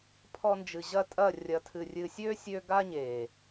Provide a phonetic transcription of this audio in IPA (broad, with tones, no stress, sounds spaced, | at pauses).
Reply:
pʰ ɔ˧ n d͡ʒ ɨ˨ ʑ ɐ˦˨ tʼ ɐ˦˨ rʲ ɐ˧ tʰ ɨ˨ rʲ ɨ˨ sʲ ø˦ sʲ ø˧ ɡ a˦ ɲ e˨